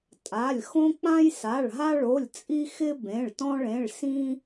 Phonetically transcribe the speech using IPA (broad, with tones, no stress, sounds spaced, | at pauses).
tʼ a˩˧˩ lʲ x õ˦ k͡p ã˦ j s a˩˧˩ ɭ ɦ a˦ ɭ o˩˧˩ lʲ t͡sʼ i˦ x ɪ˦ b ẽ˩˧˩ ɭ t ɔ̃˦ ɭ ẽ˩˧˩ ɭ s ĩ˦